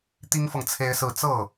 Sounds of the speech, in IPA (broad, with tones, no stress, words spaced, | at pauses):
t̪i˥ŋfɤ˨ŋ t͡sʰe˥ɪ̯sɹ̩˥˧ t͡sɤ˥˩